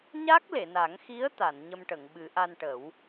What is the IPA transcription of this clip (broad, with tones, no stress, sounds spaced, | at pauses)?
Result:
ɲ a˦˥ k̚ l e˨˩˨ n a˨˩˦ ŋ x i˧˥ ə̯ t̪ a˨˩˨ n ɲ ə˧ m ʈ ə˨˩˨ ŋ ɓ ɨ˨˩˦ ʔ a˧ n ʈ ə˨˩˦ w